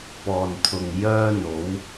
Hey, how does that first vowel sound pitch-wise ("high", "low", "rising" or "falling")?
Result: low